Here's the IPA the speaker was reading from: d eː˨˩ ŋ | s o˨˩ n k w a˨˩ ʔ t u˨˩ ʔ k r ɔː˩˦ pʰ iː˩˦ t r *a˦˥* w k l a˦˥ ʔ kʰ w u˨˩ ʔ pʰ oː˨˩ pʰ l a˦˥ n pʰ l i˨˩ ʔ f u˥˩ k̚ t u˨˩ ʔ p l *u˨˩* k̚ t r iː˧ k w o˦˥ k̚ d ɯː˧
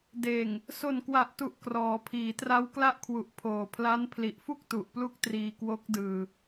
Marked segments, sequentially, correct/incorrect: correct, incorrect: u˦˥

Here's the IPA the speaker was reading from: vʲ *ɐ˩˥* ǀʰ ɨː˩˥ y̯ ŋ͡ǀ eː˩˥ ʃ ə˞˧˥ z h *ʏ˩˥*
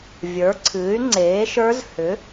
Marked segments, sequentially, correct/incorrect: incorrect: ə˞˩˥, correct

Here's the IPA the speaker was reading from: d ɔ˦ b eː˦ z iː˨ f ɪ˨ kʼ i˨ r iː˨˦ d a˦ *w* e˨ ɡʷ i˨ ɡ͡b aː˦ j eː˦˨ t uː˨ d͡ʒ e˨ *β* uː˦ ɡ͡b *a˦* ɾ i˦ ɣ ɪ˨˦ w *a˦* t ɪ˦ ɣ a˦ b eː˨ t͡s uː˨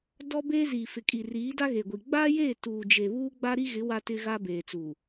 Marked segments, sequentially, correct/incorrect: incorrect: ɣ, correct, correct, correct

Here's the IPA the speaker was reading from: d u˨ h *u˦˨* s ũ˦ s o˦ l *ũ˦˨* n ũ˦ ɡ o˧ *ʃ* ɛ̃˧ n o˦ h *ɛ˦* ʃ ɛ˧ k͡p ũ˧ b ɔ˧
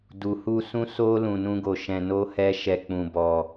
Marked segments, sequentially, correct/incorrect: incorrect: u˧, incorrect: ũ˧, correct, correct

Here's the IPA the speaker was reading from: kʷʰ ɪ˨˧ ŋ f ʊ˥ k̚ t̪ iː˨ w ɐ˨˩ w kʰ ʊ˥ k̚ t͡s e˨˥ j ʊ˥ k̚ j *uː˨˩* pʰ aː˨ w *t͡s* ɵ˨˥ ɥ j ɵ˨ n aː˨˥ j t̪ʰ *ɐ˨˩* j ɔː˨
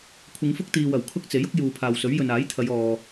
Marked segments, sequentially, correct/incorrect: incorrect: uː˨, incorrect: s, incorrect: ɐ˨˧

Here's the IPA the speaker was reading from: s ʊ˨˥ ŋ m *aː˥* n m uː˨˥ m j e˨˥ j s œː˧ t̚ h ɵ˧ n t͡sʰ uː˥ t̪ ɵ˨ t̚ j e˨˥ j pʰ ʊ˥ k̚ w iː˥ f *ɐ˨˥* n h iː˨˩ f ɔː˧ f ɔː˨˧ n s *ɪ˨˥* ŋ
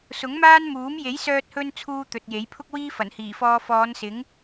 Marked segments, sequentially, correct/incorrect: correct, incorrect: ɐ˨˩, correct

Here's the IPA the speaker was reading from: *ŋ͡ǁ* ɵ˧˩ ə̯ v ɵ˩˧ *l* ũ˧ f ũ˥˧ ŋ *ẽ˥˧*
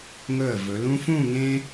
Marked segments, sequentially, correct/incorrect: incorrect: ŋ, correct, incorrect: ẽ˥

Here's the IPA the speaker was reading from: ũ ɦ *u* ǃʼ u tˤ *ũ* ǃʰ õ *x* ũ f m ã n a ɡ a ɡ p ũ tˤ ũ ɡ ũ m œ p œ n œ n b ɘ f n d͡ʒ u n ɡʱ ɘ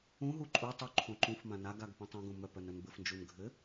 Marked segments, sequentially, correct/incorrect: correct, incorrect: u, incorrect: ǃ

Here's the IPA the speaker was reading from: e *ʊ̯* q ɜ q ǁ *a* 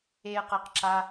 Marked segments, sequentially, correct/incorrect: incorrect: ə̯, correct

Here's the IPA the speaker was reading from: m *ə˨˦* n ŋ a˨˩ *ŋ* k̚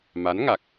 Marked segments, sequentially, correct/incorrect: incorrect: a˨˦, incorrect: none

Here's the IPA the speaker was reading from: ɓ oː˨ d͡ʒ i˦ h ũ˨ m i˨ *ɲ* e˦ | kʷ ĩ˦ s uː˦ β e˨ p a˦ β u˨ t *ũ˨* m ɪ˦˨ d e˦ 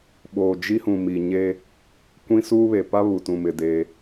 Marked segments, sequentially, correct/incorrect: correct, incorrect: ũ˦˨

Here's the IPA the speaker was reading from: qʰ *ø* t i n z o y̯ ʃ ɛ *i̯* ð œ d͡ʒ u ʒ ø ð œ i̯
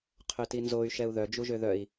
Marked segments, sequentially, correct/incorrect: correct, incorrect: u̯

